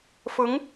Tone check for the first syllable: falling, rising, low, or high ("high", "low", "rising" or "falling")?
rising